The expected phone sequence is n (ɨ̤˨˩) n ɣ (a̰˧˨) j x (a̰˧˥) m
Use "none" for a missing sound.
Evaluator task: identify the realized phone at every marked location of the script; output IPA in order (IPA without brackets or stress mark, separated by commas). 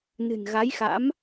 ɨ̤˨˩, a˨˦, a̰˧˥